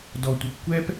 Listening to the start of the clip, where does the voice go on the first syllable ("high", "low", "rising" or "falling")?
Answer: low